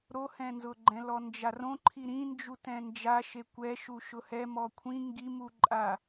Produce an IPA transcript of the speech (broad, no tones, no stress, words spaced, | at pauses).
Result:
ɾohɛ̃nzʊɡ͡ǃɛ̃ lɔnd͡ʒarõ ǃʰiɾĩnd͡ʒu tɛ̃nd͡ʒa ʃekʷɛ ʃuʃʊhɛ mɔkʷʰĩ ŋɡimuǃʼa